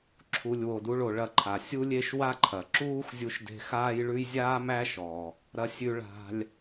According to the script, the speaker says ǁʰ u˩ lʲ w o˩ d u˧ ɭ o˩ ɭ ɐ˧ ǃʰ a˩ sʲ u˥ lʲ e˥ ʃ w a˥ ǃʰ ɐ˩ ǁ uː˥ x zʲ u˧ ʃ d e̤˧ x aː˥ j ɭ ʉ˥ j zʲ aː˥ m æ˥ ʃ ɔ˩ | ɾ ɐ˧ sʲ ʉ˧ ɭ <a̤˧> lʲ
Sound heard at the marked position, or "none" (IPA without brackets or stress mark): a̤˧